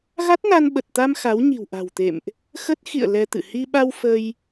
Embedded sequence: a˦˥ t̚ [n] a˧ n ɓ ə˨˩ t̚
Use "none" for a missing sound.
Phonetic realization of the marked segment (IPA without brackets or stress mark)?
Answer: n